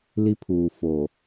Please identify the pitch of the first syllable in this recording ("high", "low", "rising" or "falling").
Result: high